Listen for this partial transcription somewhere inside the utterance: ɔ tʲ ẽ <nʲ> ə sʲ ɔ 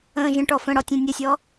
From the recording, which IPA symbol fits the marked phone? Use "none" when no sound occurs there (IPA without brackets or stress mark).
nʲ